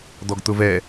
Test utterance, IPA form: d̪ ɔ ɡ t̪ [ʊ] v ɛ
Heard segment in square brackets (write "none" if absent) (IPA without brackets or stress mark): ʊ